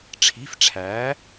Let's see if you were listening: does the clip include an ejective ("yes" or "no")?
no